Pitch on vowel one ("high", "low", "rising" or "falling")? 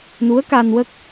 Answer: rising